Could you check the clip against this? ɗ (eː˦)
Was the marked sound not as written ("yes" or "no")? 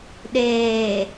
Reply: yes